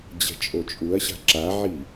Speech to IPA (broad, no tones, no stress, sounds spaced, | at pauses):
d͡ʑ ɛ̤ t͡ʃʼ o t͡ʃʼ u ɐ̯ ɕ a̤ ǁ a ʕ i